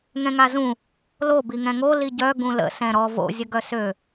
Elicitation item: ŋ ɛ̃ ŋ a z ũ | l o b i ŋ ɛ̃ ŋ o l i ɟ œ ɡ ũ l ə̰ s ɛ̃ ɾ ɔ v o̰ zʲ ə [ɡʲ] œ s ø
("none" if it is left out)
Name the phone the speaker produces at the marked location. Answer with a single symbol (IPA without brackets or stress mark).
ɡ